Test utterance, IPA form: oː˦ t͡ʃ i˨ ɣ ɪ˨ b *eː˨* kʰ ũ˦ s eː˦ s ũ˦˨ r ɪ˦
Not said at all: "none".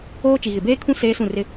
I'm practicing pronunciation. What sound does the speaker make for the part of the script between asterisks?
eː˦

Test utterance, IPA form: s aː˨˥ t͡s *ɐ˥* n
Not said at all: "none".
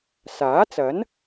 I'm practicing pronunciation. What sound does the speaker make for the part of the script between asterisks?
ɐ˨˥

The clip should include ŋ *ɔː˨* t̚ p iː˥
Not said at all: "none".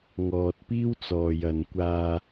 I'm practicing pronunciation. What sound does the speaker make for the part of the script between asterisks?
ɔː˨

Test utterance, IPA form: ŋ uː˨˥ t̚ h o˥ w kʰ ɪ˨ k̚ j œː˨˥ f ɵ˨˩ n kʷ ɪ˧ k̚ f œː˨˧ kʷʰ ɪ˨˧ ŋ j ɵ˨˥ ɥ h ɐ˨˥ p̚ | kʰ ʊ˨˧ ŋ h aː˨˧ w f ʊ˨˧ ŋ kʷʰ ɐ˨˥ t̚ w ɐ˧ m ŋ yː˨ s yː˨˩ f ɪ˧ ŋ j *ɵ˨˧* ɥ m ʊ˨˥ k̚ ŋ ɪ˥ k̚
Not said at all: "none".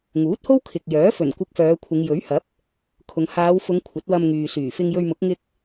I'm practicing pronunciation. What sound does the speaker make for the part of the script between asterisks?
ɵ˧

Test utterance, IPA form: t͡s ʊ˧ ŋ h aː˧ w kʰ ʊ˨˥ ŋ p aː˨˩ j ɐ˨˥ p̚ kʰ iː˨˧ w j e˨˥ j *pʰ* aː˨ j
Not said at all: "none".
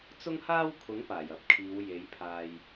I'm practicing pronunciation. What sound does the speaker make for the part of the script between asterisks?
pʰ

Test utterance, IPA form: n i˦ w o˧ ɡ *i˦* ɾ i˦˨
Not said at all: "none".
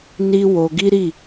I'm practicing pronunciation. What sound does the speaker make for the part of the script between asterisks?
i˦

